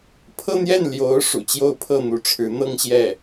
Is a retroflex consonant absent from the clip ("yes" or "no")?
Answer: no